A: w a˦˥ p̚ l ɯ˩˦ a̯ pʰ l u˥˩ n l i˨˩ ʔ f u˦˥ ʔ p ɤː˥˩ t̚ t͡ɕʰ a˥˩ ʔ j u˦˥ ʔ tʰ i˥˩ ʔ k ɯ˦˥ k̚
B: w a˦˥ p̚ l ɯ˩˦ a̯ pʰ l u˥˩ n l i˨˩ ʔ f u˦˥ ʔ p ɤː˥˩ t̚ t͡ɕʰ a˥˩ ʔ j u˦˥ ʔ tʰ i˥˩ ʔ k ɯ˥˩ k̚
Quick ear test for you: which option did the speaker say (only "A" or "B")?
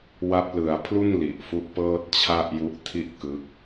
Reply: A